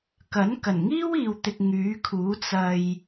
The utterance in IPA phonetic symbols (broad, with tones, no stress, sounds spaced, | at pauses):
k ɐ˨˥ n k ɐ˨˩ n ŋ iː˥ w iː˨ w t̪ ɪ˧ k̚ ŋ yː˨˥ kʰ uː˨˥ t͡s ɐ˨ j